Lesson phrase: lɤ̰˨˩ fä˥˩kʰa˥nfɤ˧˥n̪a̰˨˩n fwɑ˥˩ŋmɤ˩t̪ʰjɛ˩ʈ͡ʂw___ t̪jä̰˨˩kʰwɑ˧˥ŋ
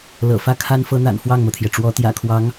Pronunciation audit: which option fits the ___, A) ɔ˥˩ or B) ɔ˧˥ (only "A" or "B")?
B